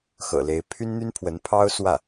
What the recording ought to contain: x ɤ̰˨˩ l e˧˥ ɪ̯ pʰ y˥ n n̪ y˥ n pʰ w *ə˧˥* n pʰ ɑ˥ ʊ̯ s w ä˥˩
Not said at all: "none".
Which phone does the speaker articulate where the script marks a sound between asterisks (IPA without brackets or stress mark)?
ə˧˥